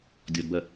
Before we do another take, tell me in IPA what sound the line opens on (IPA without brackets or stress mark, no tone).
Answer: dʲ